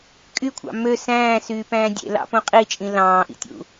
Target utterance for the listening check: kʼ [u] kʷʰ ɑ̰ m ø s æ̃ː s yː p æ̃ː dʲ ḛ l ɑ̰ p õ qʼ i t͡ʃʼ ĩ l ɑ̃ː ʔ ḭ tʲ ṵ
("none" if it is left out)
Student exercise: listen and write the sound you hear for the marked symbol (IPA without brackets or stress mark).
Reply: y